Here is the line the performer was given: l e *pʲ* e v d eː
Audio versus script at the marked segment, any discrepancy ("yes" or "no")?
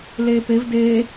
yes